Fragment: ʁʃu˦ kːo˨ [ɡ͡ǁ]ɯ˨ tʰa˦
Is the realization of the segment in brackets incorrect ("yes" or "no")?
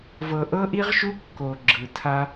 no